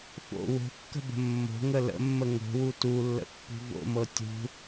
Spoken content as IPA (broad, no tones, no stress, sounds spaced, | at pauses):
f o̰ w o̤ kː ə̤ b ə̤ mː o̤ ŋ ə l ə̰ mː ə ŋ o̤ w u t u lː ə̰ pː ṳ v o̰ m ɤ tʲ ṳ